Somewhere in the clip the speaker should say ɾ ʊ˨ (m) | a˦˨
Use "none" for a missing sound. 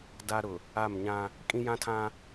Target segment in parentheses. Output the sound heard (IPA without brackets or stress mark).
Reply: none